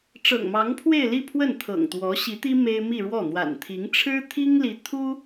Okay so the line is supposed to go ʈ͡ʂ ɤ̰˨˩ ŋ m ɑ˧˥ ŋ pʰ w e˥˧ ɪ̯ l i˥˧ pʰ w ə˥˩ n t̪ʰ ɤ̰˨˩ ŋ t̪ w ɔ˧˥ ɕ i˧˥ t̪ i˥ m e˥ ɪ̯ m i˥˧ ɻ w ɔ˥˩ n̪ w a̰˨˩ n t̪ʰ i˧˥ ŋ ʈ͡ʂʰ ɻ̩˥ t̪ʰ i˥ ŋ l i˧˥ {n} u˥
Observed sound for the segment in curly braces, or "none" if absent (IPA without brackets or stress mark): t̪ʰ